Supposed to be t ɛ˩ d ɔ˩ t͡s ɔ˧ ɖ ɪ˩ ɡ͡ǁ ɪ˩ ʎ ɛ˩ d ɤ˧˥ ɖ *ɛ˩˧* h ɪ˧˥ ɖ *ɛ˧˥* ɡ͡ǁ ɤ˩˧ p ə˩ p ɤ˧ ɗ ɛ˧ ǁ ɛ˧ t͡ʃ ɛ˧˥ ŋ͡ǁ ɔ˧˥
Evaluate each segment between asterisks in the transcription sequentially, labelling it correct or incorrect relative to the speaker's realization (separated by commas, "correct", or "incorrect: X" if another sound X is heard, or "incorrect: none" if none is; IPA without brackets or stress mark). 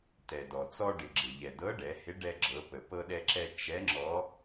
correct, incorrect: ɛ˧